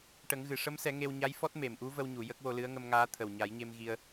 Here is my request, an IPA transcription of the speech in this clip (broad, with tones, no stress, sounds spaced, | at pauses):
ʈ ə˨˩˦ ŋ ɣ ɨ˨˩˨ ʂ ə˧˥ m s ɛ˨˩˦ ŋ e˧ w ɲ a˧˥ j f ɔ˦˥ t̚ m e˨˩˨ m ʔ u˧˥ v ə˧ w ɲ u˨˩˨ j ə˦˥ k̚ w o˧ l ɨ˧˥ ə̯ ŋ ə˧ m ŋ aː˧˥ t̪ʰ ə˨˩ w ɲ a˨˩˦ j ɲ e˧ m ɣ i˧ ə̯